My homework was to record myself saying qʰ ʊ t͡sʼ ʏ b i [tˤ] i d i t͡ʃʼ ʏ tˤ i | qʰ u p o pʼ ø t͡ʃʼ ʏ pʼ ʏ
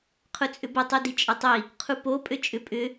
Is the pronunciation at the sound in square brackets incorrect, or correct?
correct